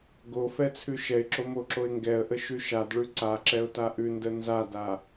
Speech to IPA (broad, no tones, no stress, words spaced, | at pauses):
ɡo fɛt͡sʰʉʃɛɪ̯ǁo moǁoɪ̯ŋɡɛə̯ʔə ʃʉʃadɭʉ ǀaǁɛʊ̯ taʔʉndə nzada